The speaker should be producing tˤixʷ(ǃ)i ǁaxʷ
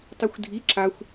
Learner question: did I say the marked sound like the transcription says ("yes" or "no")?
no